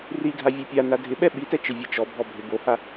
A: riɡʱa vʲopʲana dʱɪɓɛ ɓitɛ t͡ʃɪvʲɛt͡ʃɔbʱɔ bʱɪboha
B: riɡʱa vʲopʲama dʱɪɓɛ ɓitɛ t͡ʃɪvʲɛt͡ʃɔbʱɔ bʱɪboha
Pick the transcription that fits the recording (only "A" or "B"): A